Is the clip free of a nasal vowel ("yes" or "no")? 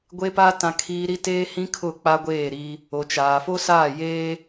no